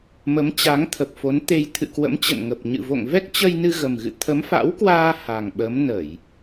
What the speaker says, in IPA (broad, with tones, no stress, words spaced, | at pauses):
mə˨˦mt͡ɕa˨˦ŋ t̪ʰə˨˩p̚fo˨˦nt̪e˧j t̪ʰɨ̰˧˨kwə̰˧˥m t͡ɕə̰˧˨nŋə˨˩p̚ ɲɨ̰˧˨vo̰˧˨ŋ vɛ˦˥k̚t͡ɕə˧jnɨ˧ ɣə˨˩mɣɨ̰˧˨ t̪ʰə˨˦mfa̰˧˥wkwaː˧ ha˨˩ŋɓə˨˦m nə˧˩˨j